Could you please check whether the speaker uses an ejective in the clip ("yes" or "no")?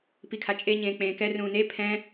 yes